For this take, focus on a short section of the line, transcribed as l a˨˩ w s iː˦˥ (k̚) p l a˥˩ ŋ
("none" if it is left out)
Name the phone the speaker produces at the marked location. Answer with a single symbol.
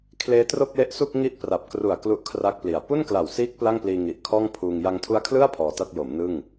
k̚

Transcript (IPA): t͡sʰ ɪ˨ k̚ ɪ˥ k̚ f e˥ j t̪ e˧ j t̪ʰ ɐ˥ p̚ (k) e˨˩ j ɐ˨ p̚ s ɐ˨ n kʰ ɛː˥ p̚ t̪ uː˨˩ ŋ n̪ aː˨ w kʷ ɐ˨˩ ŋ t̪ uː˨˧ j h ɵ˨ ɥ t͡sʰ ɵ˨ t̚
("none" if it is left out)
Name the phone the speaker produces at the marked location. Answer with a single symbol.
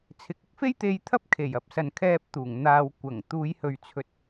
kʰ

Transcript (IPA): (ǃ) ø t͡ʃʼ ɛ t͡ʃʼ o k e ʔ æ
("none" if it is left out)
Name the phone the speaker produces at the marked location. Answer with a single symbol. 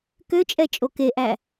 k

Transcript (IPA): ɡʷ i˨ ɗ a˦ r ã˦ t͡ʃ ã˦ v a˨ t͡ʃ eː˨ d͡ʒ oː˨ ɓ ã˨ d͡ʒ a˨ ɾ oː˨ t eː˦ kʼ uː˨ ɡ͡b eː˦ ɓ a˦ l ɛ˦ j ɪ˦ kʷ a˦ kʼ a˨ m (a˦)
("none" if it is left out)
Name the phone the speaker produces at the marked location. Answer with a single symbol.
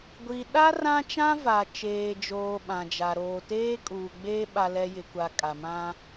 ã˦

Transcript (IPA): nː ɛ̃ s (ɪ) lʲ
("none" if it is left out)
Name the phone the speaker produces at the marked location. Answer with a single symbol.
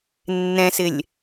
ɪ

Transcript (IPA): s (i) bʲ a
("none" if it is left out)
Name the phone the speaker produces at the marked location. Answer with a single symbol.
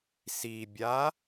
i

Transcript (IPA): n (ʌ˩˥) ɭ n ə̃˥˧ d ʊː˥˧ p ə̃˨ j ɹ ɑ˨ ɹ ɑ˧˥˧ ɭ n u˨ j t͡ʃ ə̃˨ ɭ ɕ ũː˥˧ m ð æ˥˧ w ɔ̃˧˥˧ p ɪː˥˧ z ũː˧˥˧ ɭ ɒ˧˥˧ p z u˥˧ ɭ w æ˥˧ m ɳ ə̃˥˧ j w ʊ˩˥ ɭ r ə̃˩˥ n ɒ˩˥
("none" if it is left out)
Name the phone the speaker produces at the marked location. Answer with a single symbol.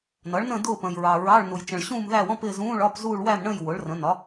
ʌ˩˥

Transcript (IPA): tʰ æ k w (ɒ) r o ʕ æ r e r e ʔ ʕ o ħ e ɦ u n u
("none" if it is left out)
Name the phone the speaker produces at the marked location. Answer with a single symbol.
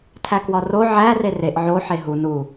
ɒ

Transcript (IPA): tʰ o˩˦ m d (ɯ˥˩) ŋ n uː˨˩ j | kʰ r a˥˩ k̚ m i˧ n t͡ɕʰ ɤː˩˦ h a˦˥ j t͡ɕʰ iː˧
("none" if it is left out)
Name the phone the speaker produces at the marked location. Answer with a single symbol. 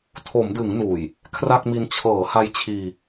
ɯ˩˦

